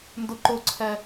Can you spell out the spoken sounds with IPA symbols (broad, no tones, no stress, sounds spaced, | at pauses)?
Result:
n d ʊ ǃ ʊ ǀʰ ɛ